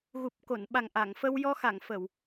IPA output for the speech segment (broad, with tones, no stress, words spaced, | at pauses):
ɣu˨˩p̚ko˨˩˨nɓa˨˩ŋ ʔa˨˩˨ŋfə˧wjɔ˧ xa˨˩˨ŋfə˨˩˨w